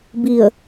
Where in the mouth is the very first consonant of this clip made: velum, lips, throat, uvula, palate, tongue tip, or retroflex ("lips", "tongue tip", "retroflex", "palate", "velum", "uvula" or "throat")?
lips